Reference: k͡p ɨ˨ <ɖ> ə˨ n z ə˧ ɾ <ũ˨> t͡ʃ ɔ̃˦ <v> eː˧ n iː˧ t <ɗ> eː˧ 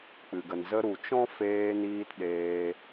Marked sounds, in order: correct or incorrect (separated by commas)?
incorrect, incorrect, incorrect, correct